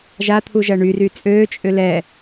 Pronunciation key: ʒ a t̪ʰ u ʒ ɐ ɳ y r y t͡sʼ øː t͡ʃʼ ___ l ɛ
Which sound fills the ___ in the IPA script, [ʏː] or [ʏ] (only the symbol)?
ʏ